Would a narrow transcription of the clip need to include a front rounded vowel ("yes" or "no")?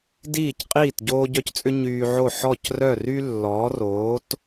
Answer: yes